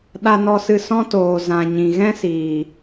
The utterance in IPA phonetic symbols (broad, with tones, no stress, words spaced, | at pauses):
ɗa˧nɔ˧sɨ˧ sɔ̃˦toː˨ zã˨ ɲĩ˨ɣɛ̃˦siː˨